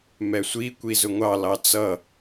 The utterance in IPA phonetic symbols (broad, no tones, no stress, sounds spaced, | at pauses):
m ɛ sʷ i kʷ i z ʊ ŋʷ ɑ l ɑ t͡s ʌ